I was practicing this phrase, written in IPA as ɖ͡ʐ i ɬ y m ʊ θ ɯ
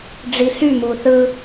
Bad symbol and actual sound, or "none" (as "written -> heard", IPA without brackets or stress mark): ʊ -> u